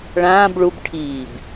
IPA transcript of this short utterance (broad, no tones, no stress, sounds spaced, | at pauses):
ɭ ãː b ɭ u b ʈʰ iː b